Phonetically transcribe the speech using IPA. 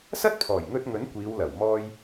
s ɐ˥ t̚ pʰ ɔː˨˩ j ŋ ɵ˧ t̚ ŋ ɵ˨˥ n kʷ iː˨˧ w l ɐ˨˩ w m ɔː˥ j

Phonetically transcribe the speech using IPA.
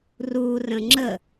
r u r ə̃ ŋ͡ǁ ə

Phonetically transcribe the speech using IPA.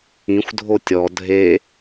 ĩ xʷ dʱ o tʲ ɔ dʱ e

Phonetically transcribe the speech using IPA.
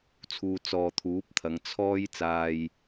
t͡sʰ uː˧ t͡s ɔː˨ t̪ʰ uː˨˥ p̚ t̪ʰ ɐ˨˧ ŋ t͡sʰ ɔː˥ j t͡s aː˧ j

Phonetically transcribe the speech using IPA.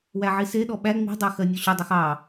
w æ ʕ i s e ɗ ɔ ɓ æ ŋ͡m i̤ dˤ ɜ x ɜ nʲ ɔ ɕ ʏ dˤ o x ɑ

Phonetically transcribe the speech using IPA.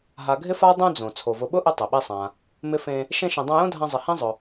ɦ a˨ ɡʱ ɪ˥ f a˥ dˤ ũ˦ d͡z õ˩ t͡sʰ o˩ v ʊ˨ ɓ ʊ˥ ʔ ɪ˦ tˤ ɪ˩ ɓ i˦ sˤ ã˨ | m ɪ˦ f ẽ˦ | ʃ ẽ˦ ʃ ẽ˨ dˤ ã˦ j õ˥ dʱ ã˦ zˤ ɪ˨ h ĩ˥ zˤ ʊ˨

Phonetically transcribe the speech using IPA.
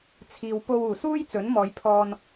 t͡sʰ iː˨ w p o˧ w uː˨˩ s uː˥ j t͡s ɵ˨˥ n m ɔː˨˧ j pʰ ɔː˧ n

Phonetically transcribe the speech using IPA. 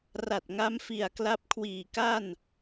r a˨˩ t̚ ŋ a˦˥ m f i˨˩ a̯ k l a˦˥ p̚ kʰ w iː˨˩ k a˥˩ n

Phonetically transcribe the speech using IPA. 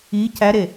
i c æ ɾ e

